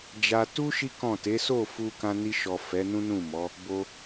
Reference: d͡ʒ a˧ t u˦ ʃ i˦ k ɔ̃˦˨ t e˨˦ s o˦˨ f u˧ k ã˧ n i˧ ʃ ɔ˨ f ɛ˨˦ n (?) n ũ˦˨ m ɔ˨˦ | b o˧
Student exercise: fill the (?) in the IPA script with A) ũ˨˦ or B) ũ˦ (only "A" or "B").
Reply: B